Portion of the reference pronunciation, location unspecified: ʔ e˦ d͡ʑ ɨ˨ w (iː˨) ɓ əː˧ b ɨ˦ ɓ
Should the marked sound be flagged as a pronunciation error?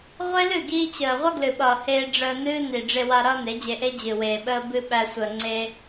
yes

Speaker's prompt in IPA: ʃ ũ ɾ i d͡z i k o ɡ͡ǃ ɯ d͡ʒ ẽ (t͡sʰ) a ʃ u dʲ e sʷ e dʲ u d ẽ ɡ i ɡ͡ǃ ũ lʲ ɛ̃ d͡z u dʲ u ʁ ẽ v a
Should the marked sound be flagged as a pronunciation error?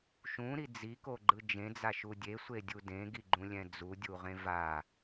yes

